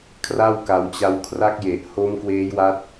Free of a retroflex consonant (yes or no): yes